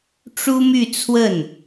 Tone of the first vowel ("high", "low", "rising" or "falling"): high